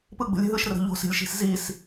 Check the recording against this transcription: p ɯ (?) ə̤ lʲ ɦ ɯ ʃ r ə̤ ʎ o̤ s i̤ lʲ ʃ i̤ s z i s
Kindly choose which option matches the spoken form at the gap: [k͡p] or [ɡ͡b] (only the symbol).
ɡ͡b